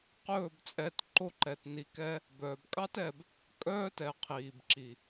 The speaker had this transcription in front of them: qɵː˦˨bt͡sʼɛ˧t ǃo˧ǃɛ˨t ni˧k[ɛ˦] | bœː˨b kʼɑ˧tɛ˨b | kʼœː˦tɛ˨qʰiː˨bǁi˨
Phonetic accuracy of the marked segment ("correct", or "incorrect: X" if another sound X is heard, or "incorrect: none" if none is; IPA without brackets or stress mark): correct